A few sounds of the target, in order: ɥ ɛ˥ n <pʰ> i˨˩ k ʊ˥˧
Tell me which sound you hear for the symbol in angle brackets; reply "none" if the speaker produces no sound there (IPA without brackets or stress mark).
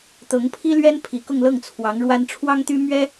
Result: pʰ